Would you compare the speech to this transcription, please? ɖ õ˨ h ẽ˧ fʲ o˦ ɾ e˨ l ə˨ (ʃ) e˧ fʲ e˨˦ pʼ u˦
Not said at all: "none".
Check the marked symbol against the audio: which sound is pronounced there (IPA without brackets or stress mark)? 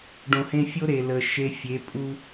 ʃ